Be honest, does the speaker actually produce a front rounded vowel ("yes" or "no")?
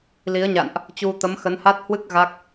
no